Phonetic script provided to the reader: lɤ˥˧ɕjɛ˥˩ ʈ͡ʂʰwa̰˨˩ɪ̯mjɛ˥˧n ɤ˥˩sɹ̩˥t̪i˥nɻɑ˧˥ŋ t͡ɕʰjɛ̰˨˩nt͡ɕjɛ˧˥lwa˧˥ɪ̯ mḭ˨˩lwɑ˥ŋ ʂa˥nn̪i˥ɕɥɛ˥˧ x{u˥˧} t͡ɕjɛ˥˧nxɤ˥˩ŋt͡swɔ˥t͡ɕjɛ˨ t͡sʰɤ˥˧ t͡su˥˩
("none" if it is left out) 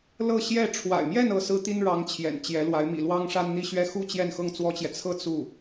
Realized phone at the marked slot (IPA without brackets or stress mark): u˥˧